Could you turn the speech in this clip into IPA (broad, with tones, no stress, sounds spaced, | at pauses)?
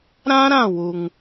ɾ ã˦ ɾ ã˦˨ w u˨ ŋ